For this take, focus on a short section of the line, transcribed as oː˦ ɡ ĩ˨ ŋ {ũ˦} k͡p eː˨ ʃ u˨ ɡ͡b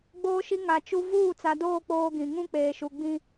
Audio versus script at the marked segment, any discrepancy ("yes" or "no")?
no